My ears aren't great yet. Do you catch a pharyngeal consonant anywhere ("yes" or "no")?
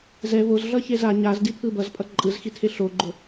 no